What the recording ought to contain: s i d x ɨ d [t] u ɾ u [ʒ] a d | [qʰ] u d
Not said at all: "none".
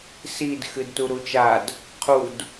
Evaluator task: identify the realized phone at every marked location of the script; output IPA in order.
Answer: t, t͡ʃ, qʰ

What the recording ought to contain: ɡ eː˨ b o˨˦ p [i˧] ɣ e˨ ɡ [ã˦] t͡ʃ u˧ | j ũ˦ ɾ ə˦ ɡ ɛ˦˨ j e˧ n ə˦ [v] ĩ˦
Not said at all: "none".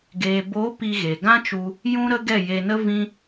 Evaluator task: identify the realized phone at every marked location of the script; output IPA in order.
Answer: i˧, ã˦, v

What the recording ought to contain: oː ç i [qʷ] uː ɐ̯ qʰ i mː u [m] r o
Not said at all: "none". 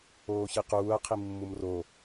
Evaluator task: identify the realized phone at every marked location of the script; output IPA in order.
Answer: q, m

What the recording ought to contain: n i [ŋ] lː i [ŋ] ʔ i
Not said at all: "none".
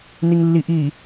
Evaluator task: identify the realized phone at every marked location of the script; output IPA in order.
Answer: ŋ, none

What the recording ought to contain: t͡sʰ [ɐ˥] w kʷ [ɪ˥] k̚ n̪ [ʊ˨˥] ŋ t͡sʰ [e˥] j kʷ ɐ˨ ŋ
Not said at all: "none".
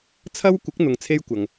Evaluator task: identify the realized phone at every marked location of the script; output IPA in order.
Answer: ɐ˥, ɪ˨˥, ʊ˨, e˥

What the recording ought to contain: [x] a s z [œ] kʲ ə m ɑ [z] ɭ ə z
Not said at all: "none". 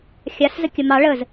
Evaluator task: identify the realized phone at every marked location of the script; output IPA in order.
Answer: xʲ, ə, none

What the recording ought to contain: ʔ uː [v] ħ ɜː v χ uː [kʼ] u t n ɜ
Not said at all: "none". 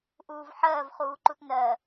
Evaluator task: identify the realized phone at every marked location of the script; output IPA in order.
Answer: v, ǃ

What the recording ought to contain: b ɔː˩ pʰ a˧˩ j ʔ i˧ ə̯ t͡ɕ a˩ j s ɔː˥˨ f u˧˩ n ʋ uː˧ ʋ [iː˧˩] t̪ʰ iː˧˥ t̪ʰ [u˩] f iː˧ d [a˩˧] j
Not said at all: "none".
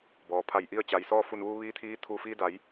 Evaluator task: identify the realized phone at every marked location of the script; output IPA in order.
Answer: iː˧˥, u˧˩, a˩˧

